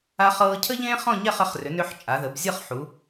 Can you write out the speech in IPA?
a˧ χ ɤː˧ cʰ ə˥ ʎ ẽː˥ χ ɔ̃˥˧ ɲ ɛ˥˧ χ ə˧ χ r ʏ˩˧ n ʏ˧ ħ t͡ʃʼ a˩˧ ð ə˩˧ b zʲ ɤ˥˧ χ ħ u˩˧

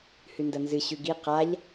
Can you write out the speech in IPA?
h ʉ n d ɐ n z ɨ ɕ ʉ ɡ i q a ʎ

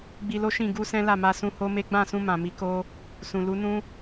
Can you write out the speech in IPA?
ɡ͡b i˧ l o˦ ʃ ĩ˦˨ ɡ u˧ s ɛ̃˦ l a˦˨ m a˧ s ũ˧ h o˦ m e˦ ɡ͡b ã˦˨ s ũ˧ m ã˨ m i˨˦ k o˧ | s ũ˨ l u˨˦ n ũ˦

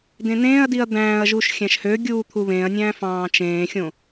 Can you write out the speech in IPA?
d ẽ n ẽː ɐ̯ d i ɐ̯ d̪ æ̃ː ɐ̯ ʒ u ʃ xʲ æ̃ ʃ h ø ɡʲ uː t̪ʰ u β ẽː ɐ̯ nʲ æ̃ː f ɑ̃ː t͡ʃ ẽː xʲ õ

